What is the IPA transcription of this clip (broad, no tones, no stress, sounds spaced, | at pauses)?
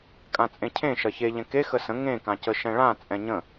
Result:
kʼ ã t͡sʼ ẽ cʰ ẽ ʃ ɐ ç e ʎ ɛ̃ k e x ə s ə̃ ŋ ẽ k ã c ə ʃ ɛ̃ ɭ ã t͡sʼ ɛ̃ ɲ ə̃